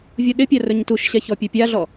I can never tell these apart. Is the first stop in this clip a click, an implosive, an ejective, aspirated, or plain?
implosive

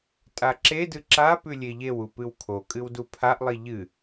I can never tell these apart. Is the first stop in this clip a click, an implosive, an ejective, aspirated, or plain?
ejective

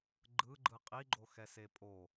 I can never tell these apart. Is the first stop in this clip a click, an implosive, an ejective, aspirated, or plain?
click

